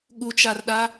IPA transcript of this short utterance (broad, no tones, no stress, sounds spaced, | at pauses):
ɠ u t͡ʃ a r ɗ a